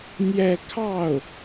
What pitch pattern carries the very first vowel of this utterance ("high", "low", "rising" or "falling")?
falling